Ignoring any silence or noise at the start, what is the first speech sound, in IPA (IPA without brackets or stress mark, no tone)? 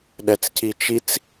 ɗ